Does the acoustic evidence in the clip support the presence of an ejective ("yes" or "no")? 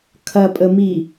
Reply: yes